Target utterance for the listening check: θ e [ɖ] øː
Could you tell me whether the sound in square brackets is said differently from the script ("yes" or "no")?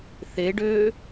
no